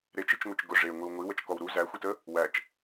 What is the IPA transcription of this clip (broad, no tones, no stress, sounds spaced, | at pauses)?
ɾ e t͡ʃ i t͡ʃ ŋʷ i t͡ʃ ɡ ʊ ʐ e ŋʷ i w ŋʷ i w ə t͡ʃ k ɔ w ɾ u z æ xʷ i t ə | w æ t͡ʃ